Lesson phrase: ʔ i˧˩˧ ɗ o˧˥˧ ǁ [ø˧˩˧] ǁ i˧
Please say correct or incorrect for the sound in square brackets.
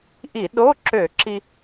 correct